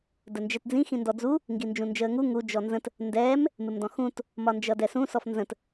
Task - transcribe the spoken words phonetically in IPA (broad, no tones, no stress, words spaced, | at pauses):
dənd͡ʒɛtd͡zĩ xĩndɔd͡zu | ŋɡind͡ʒũnd͡ʒəːŋu ŋu d͡ʒɔnzə̃t | ndɛːm | mɪmdɔ̃xũt | mɒnd͡ʒʌdɛsũ sɔfnzə̃t